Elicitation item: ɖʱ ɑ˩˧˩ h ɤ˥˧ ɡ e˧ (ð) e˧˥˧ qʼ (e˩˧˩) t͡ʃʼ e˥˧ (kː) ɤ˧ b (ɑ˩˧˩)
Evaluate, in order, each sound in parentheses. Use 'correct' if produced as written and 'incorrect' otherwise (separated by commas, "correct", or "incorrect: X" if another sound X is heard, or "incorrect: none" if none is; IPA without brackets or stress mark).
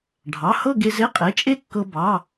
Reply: incorrect: z, correct, correct, correct